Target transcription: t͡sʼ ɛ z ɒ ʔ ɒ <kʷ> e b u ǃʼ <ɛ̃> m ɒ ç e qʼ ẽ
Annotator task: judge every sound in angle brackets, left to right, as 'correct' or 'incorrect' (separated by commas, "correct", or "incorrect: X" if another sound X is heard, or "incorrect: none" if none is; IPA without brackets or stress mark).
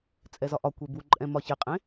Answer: correct, correct